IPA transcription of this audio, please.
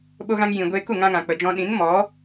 ɓo˧ɣã˧ŋ jĩ˨ɡʷeː˧ ku˦˨ŋã˧ŋã˨ k͡pə˨d͡ʒɔ̃˧ ɗĩ˨˦nmɔ˨˦

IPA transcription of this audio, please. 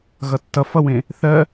ɣʌtːʌ fʌwẽ | θɜ

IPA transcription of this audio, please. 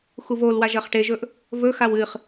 xuvolwaʒ ɐχʈeʒɵʔ | vɵxaw ɨχ

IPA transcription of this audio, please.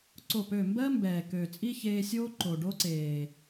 ǀo˦˨pø˦˨ mbɜ˦ mbɛː˨ kø˨t͡sʼi˦ çeː˧sʲoː˦ ǃo˨ɖo˦ǀeː˨

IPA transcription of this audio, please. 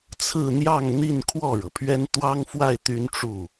t͡sʰɹ̩˥˧n̪jɑ˥˧ŋn̪i˥˧n kʰwɔ˥˩ɻɤ˩pʰɥɛ˥n t̪wɑ˥ŋfwa˥˩ɪ̯ t̪y˥nʈ͡ʂu˥˩

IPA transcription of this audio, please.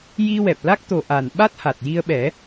ji˧wɛ˨˩p̚la˦˥k̚ t̪o˨˩ ʔa˨˩nɓa˦˥t̚ha˨˩t̚ ji˧ə̯ɓɛ˨˩˦

